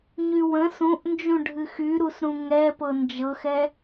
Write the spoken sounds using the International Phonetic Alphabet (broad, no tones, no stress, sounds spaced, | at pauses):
ɲ y w ə̃ s ũ ʔ n d͡ʒ ũ ɖʱ ɨ x y ɾ u s ɾ ũ ŋ ɛ p ɤ n d͡ʒ ɤ x ɛ